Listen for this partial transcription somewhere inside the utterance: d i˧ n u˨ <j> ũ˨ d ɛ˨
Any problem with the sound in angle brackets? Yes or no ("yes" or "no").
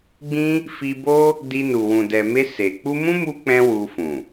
yes